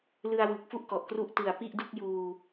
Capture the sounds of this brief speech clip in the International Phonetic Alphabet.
l ɯ˧ a̯ w ɯ˨˩ k̚ f u˥˩ ʔ k ɔ˨˩ ʔ k r u˥˩ ʔ t ɯ˨˩ a̯ p i˥˩ ʔ d u˥˩ k̚ j uː˧

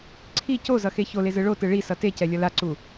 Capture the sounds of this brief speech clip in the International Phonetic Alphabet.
ǀʰ i c o z ʌ x e ç o l e z ɯ ɭ o t ɯ ɭ i s ʌ t e c ɛ lʲ ʌ l a ǀ u

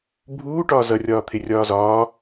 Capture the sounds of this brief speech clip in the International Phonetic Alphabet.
bʱ uː ʈ ɒː z ʌ rʲ ɒː t̪ʰ ɪ rʲ ɒː z ɒː

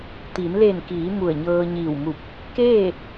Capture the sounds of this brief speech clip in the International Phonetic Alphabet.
t̪ i˩˧ n l e˧˩ n k iː˩˧ m u˧˩ ə̯ ɲ ɤː˧ ɲ iː˧˩ w m u˧˩ p̚ | k eː˥˨

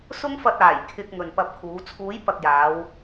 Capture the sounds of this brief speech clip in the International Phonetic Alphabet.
s ʊ˥ ŋ f ɐ˧ t̚ aː˨˩ j kʰ ɪ˧ k̚ ŋ ɵ˨ n p ɐ˧ p̚ kʰ uː˨˥ t͡sʰ uː˨˥ j p ɐ˨ k̚ j aː˨˧ w

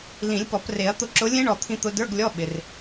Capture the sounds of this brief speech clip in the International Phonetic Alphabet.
l ĩ˨˩˦ lʲ p ɔ˨˩˦ p r e˨˩˦ ɐ̯ t̪ ʊ˥˨ ǁ ʊ˧˥ lʲ ẽ˧˥ ɳ ɔ˧˩ t̪ʰ ĩ˧ t̪ ʊ˧ d ə˞˧˥˧ ɡ lʲ ɔ˧˥˧ ɓ ɪ˧ r

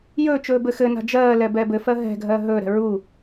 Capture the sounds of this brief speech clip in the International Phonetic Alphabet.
j ɵː t͡ʃ ɵː b ɘ x ɘ n a̤ d͡ʒ ɜː l ɛ b ɛ b ɘ f ɜ ɦ ɛ̤ ɡʱ ɜ ɦ ɵː ɾ ɛ̤ ɹ u

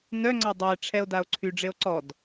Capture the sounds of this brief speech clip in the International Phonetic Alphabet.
n œ ŋ͡ǀ a dˤ ɛ e̯ ʈ͡ʂʰ ɛ o̯ d a o̯ ǀʰ y ɖ͡ʐ e o̯ ǀ ɔ d

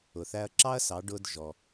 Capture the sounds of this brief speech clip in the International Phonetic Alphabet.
ʊ˩ θ æ˧ ɐ̯ ǁ ɑ˥ ɐ̯ s ɑ˩˧ ɖ ʊ˧ d ʒ ɔ˩

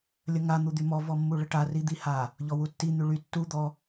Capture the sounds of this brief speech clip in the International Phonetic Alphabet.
lʲ ə ŋ a n̪ u d̪ y m ɔ v ɔ mː u ɭ ə ʈ a r i d̪ i h a | ʎ ɔ w u tː i n̪ y ɭ y tː u d̪ ɔ

